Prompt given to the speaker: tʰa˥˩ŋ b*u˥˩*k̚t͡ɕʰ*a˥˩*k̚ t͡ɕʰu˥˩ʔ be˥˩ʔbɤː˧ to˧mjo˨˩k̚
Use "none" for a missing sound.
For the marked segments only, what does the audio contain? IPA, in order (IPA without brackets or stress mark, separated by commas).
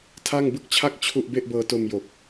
ɯ˥˩, a˥˩